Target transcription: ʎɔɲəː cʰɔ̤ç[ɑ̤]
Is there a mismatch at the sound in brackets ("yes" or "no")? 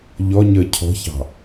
no